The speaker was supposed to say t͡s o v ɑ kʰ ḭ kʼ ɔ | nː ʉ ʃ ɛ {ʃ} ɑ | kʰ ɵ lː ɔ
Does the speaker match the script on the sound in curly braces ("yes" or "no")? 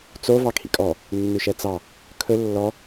no